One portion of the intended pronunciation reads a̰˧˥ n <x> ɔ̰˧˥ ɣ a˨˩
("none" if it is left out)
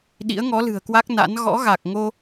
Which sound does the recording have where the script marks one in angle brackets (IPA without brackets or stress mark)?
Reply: ɣ